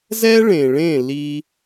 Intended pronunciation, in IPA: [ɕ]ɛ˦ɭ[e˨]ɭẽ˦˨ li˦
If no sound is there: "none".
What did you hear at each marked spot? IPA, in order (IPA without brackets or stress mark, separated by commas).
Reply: z, ẽ˨